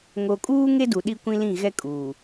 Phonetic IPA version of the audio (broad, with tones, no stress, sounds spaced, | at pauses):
ŋ o˨ kʼ uː˦ ŋ e˦ d u˨ ɗ i˦ kʷ ĩ˦ l ĩ˦˨ ɣ ɛ˦ kʼ uː˨